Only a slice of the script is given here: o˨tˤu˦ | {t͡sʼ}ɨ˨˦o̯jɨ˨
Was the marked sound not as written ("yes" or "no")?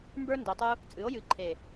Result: no